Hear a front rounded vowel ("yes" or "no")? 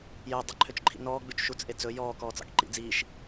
yes